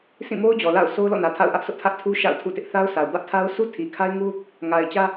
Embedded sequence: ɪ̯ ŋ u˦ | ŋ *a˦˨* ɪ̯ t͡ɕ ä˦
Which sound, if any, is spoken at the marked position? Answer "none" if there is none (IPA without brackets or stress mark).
a˨